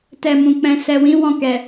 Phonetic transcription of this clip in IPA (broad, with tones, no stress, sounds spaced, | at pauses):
t ɛ˨ m ũ˨ k͡p ɛ̃˨ s ɛ˨ w ĩ˨˦ w ɔ̃˦˨ k ɛ˨